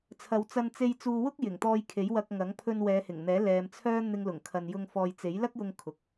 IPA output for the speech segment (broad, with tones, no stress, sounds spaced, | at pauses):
t͡sʰ ɐ˨˧ w t͡s ɐ˧ n t͡s e˧ j t͡s uː˧ w ʊ˥ k̚ j ɪ˨˩ ŋ t̪ ɔː˧ j kʰ e˨˥ j w ɐ˧ k̚ ŋ ɐ˨˥ ŋ pʰ ɵ˧ n w ɛː˨˧ h ɪ˨˩ ŋ n̪ ɛː˨˥ l ɛː˨ m t͡sʰ œː˥ n̪ ɪ˧ ŋ l ʊ˨˩ ŋ kʰ ɐ˨ n j ʊ˧ ŋ f ɔː˨ j t͡s e˨˥ j l ɐ˥ k̚ j ʊ˧ ŋ kʰ ʊ˨ k̚